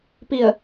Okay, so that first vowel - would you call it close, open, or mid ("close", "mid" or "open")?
close